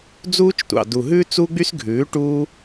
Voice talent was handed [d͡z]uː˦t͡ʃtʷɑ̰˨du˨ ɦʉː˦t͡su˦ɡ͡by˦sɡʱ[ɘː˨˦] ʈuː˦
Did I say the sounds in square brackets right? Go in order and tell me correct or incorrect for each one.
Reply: correct, incorrect

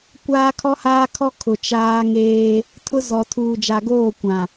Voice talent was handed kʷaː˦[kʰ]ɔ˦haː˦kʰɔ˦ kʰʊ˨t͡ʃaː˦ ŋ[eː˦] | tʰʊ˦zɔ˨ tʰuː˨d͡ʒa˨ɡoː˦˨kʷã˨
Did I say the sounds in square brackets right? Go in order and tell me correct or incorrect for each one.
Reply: correct, correct

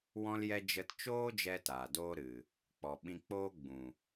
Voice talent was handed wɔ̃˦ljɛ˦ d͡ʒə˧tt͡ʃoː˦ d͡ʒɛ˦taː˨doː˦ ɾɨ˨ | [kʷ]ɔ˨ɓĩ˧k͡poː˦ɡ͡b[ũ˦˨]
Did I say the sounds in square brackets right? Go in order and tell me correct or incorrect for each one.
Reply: incorrect, incorrect

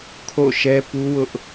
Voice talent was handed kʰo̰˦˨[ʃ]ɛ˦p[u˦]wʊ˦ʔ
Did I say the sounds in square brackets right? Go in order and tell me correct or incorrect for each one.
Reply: correct, correct

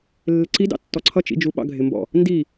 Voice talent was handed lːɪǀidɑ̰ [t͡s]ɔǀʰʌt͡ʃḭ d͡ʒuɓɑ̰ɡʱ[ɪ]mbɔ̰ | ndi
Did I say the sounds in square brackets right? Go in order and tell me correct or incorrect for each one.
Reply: incorrect, correct

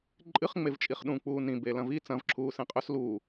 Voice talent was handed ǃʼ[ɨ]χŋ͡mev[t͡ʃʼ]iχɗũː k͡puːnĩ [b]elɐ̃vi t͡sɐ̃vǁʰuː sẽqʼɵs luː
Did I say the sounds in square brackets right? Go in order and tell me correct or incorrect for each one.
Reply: correct, correct, correct

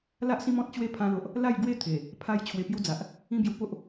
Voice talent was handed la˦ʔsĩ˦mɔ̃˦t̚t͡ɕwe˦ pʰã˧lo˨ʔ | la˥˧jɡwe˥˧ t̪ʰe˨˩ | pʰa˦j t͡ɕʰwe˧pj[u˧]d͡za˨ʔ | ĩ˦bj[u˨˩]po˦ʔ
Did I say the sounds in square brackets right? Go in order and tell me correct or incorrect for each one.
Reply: incorrect, incorrect

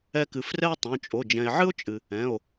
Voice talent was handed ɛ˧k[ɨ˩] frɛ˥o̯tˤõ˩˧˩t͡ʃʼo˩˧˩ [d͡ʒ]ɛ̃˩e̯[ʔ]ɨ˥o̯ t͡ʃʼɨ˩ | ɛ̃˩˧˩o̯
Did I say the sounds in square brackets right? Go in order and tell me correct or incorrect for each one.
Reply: correct, correct, incorrect

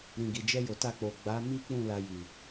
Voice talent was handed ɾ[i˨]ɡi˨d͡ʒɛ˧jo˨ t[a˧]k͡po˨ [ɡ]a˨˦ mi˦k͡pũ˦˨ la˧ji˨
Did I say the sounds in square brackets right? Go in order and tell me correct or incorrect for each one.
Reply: incorrect, correct, incorrect

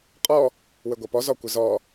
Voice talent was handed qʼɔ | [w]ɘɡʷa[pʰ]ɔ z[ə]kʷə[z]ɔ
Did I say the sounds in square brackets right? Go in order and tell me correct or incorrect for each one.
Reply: correct, incorrect, incorrect, correct

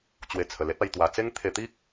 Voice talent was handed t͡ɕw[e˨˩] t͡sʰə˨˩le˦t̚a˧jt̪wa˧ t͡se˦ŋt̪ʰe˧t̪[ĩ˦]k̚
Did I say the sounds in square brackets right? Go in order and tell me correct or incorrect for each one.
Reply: correct, incorrect

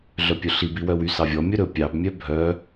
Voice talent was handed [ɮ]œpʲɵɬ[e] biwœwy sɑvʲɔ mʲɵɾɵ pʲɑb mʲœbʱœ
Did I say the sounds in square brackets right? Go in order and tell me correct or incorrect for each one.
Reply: correct, incorrect

